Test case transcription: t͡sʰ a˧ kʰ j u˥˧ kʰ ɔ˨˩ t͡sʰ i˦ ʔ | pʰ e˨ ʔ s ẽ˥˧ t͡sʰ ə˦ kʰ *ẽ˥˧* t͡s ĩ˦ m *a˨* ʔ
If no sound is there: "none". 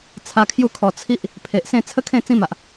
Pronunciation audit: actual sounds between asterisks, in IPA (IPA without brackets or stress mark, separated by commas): ẽ˥˧, a˨